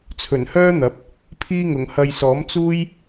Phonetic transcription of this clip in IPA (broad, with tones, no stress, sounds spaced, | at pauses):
t͡sʰ ɵ˨˩ n h œː˥ n̪ ɐ˨˥ p̚ | pʰ iː˧ ŋ ʊ˨˩ ŋ h ɐ˨ j s ɔː˨˥ m t͡s uː˥ j